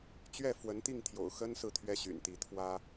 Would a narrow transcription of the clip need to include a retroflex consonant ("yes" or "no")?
no